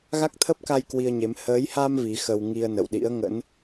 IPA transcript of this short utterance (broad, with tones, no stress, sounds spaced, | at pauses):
ɣ a˦˥ k̚ t̪ʰ ə˦˥ p̚ k a˧ j k w i˧ ə̯ ɲ e˨˦ m h əː˨˦ j h a˧ m v i˨˦ x ə˧ w ŋ i˧ ə̯ n ə̰˧˨ w ɗ ḭ˧˥ ə̯ ŋ ə̰˧˥ n